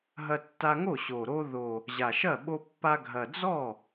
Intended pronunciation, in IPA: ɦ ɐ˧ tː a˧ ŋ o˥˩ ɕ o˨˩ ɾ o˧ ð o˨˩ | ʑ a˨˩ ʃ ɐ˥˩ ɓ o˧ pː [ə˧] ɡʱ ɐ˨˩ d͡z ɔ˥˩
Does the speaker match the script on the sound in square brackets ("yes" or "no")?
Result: no